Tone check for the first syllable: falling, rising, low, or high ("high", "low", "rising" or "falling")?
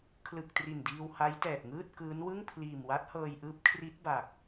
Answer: low